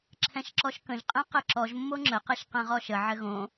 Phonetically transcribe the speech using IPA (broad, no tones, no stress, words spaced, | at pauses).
ǁʰɛ̃ʃǁɔʃkə̃ʒ qʼɛ̃qɘǁɔʒ mːoŋ͡ǁə qɛʃqɛ̃ʁɔʃə ʕɘɣõ